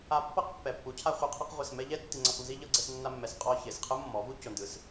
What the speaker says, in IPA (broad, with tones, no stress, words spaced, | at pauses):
a˧pːɤ˦q pːɛ˨pːu˨˦ cʰa˧χʷɤ˧qʰɯ˧q ʁʷi˨smɛ˧ʎɛ˦ tːi˧ŋ͡ǀa˧qnzi˦ ʎɤ˧ɡ͡ǀɛ˧snːa˧mːɛ˨s qʼɔ˧ çe˨sqʰɯ˦mːɔ˨˦vu˦ co˧ndɯ˧s